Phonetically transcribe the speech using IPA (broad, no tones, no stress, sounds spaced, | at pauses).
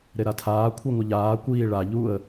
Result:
ɾ e ɾ a tʰ aː kʷʰ i ŋʷ ə ʎ aː kʷ iː ɭ a ʎ u ə̯